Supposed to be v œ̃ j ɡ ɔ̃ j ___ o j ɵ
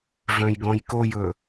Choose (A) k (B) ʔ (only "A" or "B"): A